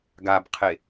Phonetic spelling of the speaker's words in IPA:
ɡabqʰe

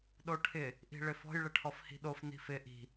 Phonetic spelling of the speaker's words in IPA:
ɗoʈʰɪ | ʔi̤ɭɪfɔ̤j ɭɪʈʰɔfhi̤ɗof ni̤fɪ ʔi̤

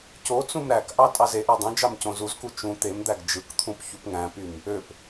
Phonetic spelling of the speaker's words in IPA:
cot͡sũm ɾækʔɑ tʼɑzeʔæ dˤõd͡ʒɑm cõzuzku t͡ʃũ t̪emd̪æɡ d͡ʒɯkt̪ʰũp çupŋæ̃pym | øp

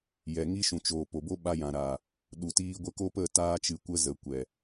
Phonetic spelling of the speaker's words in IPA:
jɛ˨ŋi˦ ʃũ˨t͡ʃoː˨ po˨bo˦ɓa˧ jã˨ɾaː˨ | ɗu˨tiː˧ ɡʷə˧ko˦ pə˦˨taː˧t͡ʃɨ˨ kʷə˦zə˨ kʷɛ˨

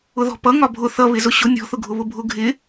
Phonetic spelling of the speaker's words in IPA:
ʊðɔ̤pʌ ŋɒbʱʊ θʌ βɪzʊɕʊ nʲɔ̤θʊɡʱʊ βʊbʱʊ ɡʱɪ

